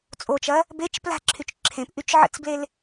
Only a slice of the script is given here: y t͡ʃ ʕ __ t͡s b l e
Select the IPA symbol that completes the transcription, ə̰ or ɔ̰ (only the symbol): ə̰